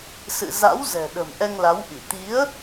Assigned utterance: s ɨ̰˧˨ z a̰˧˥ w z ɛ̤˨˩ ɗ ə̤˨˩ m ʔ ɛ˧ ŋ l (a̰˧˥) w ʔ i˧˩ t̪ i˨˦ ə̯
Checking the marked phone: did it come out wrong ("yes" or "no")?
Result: yes